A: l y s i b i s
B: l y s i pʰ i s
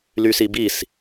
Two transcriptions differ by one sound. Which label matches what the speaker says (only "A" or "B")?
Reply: A